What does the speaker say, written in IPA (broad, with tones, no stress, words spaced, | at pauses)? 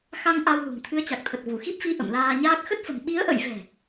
xa˧ŋ ʔa˧wlṳ˨˩ŋ t̪ʰɨ˨˦ə̯t͡ɕa˨˩k̚t̪ʰə˨˩t̚ vu˧˩xi˦˥p̚fi˧ ʔə̰˧˨mlaː˧ɲaː˦˥k̚ xə˦˥t̚fə̤˨˩m ɓi˨˦ə̯ʔə̰˧˨jvɛ̤˨˩